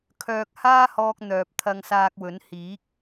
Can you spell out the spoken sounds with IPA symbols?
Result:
kʰ œː˧ k̚ h aː˥ h ɔː˧ k̚ n̪ œː˨ p̚ t̪ʰ ɐ˧ ŋ s aː˧ k̚ w ɵ˨˥ n h iː˨˥ k̚

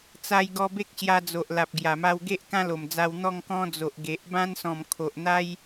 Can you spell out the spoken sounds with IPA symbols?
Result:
t͡s a˧ j ɡ ɔ˧ b e˦ k̚ ɕ j a˧ d͡z o˨ ʔ l a˨ p̚ ɡ j a˨˩ m a˧ w ɡ e˦ ʔ k ã˦ l o˨˩ m d͡z a˧ w n̪ ɔ˥˧ ŋ k ɔ̃˦ d͡z o˨ ʔ ɡ e˨ ʔ b ã˦ n s ɔ̃˨˩ m kʰ o˨ ʔ n̪ a˦ j

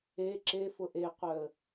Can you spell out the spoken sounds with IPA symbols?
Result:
e ǁ e f ʊ ʔ e qʷ œ ə̯

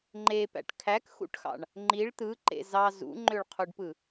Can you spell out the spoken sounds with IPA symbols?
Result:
ŋ͡ǃ e p æ̰ ʈ kʰ æ k x ṵ ʈ x ɑ̰ ɳ | ŋ͡ǃ i ɭ t̪ ɯ ǃ ḛ z ɑ z ṵ ŋ͡ǃ ø ɭ qʰ u ɖ p ɯ

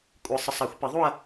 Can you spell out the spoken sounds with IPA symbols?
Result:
kʷʼ ɯ˨ sˤ ɯ˨ sˤ a˨˩˦ xʷ p i˨˩˦ ðˤ u˥˧ ɐ̯

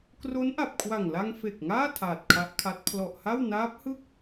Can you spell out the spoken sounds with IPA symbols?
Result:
k r o˦˥ n ʔ a˨˩ p̚ kʰ w a˨˩ ŋ l a˧ ŋ f e˨˩ k̚ ŋ aː˥˩ tʰ aː˨˩ t̚ kʰ a˦˥ ʔ kʰ a˦˥ t̚ pʰ l ɔ˨˩ ʔ h a˥˩ w n aː˦˥ p̚ h ɯ˥˩ k̚

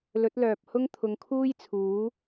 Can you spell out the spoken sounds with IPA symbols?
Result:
l ɵ˨˥ t̚ l œː˨ p̚ h ʊ˥ ŋ t̪ʰ ʊ˨˧ ŋ kʰ uː˥ j t͡sʰ uː˨˥

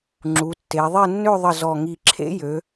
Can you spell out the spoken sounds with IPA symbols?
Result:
ŋ͡ǁ u˩˧ tː e˩˧ ðˤ e˥˧ nː ø˥˧ ðˤ ə˧˩ z ɔ˧˩ ŋ i˧˩ ǁʰ ḛ˥ j ø˩˧

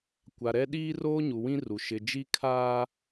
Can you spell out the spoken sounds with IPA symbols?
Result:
kʷ a˨ ɾ ɛ˦ ɗ iː˦ r oː˦ ɲ u˨ w ĩ˦ r u˨ ʃ ɪ˨ d͡ʒ i˦ kʰ aː˦

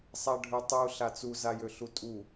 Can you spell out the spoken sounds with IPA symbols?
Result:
sˤ a ɖʱ ø tˤ u ɬ a t͡s u z a j ø ɬ u tʼ u

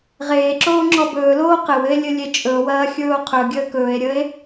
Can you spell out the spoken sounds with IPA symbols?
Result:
ʁ eː ǁ oː ŋ͡ǁ ɔ b ɵː l oː q ɘ w ɘ e̯ lʲ ɘ lʲ e t͡ʃʼ ɵ o̯ w ɐː xʲ ɵː o̯ qʰ ɵ ɡʲ əː k ɵː e̯ ɾʲ əː e̯

